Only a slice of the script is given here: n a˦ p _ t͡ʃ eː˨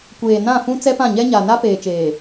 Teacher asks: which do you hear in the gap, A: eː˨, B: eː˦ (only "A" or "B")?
A